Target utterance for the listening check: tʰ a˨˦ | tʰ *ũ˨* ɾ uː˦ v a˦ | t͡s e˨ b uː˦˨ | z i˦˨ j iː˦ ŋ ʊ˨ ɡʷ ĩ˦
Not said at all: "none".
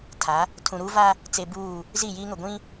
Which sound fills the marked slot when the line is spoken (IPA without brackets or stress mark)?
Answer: ũ˨